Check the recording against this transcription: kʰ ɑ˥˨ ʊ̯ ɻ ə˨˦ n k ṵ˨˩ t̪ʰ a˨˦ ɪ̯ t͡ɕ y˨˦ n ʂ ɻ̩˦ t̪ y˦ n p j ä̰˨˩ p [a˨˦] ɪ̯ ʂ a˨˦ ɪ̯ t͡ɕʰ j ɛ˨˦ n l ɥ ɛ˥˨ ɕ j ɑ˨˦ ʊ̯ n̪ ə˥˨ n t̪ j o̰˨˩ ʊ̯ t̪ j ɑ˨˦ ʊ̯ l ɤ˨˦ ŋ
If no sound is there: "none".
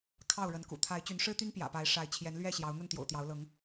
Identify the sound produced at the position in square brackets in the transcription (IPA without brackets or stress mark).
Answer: a˨˦